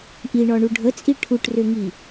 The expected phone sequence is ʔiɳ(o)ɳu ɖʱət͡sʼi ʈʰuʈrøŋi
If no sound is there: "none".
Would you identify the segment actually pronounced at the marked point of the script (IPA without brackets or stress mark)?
ɔ